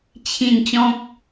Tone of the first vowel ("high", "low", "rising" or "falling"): falling